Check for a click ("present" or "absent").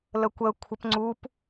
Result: present